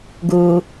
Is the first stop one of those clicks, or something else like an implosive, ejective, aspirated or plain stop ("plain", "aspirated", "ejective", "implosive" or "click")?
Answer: plain